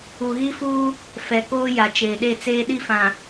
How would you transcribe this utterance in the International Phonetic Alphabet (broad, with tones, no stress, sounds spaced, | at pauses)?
u˨ ɣ i˦ f uː˦ | f ɛ˨ k oː˦ j a˨ t͡ʃ eː˨ ɗ e˦˨ t͡s eː˦ ɗ i˦ f ã˨